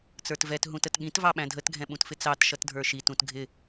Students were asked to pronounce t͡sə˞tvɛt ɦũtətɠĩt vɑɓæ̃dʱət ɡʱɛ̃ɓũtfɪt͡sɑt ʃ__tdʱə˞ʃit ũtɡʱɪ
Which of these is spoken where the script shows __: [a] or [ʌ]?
ʌ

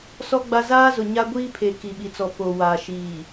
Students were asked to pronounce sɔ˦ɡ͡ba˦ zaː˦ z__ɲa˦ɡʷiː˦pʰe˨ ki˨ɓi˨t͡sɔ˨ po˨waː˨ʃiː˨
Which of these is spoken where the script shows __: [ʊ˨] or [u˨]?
ʊ˨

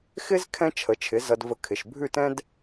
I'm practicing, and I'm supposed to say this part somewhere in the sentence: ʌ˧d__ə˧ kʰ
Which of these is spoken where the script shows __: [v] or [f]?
v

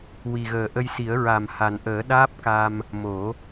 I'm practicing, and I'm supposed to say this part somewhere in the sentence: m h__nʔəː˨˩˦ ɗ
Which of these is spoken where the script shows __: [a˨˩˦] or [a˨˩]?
a˨˩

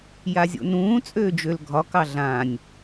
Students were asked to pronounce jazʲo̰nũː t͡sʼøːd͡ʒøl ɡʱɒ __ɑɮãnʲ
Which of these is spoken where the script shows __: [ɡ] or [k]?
k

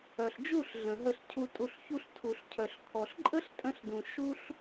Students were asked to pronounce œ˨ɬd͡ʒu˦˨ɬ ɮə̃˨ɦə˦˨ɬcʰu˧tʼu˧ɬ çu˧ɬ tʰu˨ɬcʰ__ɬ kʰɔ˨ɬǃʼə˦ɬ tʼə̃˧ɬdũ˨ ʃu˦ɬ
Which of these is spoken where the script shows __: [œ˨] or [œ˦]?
œ˨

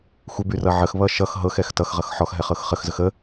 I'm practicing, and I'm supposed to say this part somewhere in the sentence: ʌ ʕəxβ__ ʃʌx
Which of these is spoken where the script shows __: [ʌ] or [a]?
ʌ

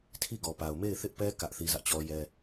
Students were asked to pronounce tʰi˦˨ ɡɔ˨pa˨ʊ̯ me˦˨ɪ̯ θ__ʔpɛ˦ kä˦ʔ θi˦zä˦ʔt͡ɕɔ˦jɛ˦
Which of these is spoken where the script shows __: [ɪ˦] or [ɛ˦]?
ɪ˦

